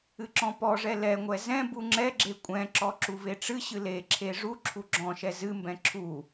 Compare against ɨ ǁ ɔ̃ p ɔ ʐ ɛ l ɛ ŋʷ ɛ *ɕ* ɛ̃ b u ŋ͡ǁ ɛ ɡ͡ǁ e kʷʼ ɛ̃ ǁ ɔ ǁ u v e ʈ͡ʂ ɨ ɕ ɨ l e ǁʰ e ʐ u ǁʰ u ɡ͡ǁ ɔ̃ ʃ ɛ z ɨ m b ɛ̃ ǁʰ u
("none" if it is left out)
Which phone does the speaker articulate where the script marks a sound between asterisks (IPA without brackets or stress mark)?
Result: z